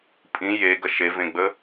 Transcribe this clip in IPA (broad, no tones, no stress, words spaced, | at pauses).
pʼĩ jeɡɐ ʃevẽɡ͡bə